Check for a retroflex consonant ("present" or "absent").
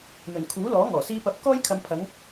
absent